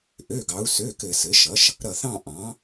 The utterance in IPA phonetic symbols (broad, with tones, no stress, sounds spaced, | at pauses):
ʔ ø˩˧˩ ɡ ɑ˩˧ u̯ s ø˩˧˩ k ɘ˧˩˧ s ɘ˩˥ ʃ ʌ˩˥ ʃ | ɾ ʌ˧˩ θ ɑ̃˥˨ ʔ ɑ̃˩˥